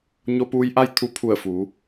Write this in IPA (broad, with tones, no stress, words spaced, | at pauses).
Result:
ɲo˧puː˧jʔa˥˨j t̪ʰu˧ pʰu˧˩ə̯fuː˩˧